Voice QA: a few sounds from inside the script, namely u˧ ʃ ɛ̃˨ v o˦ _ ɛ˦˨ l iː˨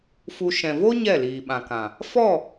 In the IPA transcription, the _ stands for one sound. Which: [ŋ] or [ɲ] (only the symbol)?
ɲ